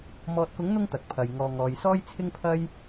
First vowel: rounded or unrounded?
rounded